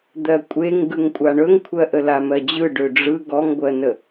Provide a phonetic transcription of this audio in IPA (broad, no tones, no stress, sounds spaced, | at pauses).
d̪ ɜ kʷʼ e ŋ ɡ ɯ ŋ kʷʼ a ɳ ɵ ŋ kʷʰ ɜ ʔ ə l a m ɜ d͡ʑ ɯ ɖ ø ɖ͡ʐ ɯ ɡ ɔ ŋ ɡʷ ɜ n ə